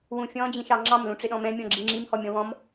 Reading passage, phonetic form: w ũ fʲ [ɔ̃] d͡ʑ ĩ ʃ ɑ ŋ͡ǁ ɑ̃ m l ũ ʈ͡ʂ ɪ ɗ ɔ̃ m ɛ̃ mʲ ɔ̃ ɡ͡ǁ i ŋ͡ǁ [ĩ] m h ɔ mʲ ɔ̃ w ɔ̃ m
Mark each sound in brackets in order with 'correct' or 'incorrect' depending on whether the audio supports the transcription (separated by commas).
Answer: correct, incorrect